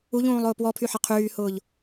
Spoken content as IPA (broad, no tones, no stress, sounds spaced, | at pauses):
u ʎ ũː lˠ ʊː p w ɔ pʰ y ħ ɐ qʰ yː h ʊː ʎ